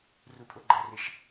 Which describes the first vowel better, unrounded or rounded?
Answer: rounded